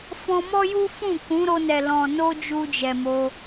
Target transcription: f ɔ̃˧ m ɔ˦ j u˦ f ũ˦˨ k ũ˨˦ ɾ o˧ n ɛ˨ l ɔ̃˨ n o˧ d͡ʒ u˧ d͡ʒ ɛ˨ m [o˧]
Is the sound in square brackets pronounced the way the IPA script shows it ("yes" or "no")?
yes